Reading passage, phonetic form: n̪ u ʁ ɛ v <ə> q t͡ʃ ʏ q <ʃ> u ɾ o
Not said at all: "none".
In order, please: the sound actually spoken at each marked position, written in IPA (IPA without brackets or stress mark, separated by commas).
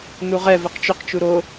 ə, t͡ʃ